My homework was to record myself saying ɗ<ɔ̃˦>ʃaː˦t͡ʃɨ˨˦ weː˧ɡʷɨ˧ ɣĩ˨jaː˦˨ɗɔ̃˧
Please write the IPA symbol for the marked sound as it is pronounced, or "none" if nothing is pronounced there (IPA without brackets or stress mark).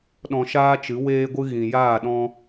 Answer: ɔ̃˧